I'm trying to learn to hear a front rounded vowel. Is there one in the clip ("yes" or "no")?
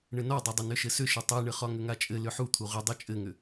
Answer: yes